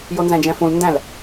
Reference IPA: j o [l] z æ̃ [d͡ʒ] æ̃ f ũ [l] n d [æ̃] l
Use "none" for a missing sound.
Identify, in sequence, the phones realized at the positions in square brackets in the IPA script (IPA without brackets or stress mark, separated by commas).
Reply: n, d͡ʒ, l, æ̃